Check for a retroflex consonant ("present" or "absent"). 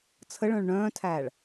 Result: present